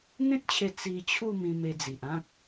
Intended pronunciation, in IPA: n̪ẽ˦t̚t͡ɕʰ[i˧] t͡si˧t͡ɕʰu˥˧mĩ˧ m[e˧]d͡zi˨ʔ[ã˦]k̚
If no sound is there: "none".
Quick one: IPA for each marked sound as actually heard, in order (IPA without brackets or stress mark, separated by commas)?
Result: e˧, e˧, ã˦